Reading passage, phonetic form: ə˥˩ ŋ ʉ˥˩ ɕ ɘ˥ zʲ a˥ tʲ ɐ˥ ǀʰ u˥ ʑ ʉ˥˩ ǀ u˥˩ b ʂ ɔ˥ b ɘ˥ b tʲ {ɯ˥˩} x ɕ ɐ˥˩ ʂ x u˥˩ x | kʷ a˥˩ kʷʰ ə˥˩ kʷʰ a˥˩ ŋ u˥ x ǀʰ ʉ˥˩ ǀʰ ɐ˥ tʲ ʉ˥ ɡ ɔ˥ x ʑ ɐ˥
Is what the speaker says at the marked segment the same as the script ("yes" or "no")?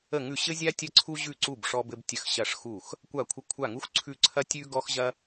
no